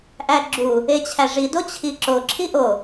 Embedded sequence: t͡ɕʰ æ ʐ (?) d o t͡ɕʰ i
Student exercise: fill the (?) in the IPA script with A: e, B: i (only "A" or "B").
B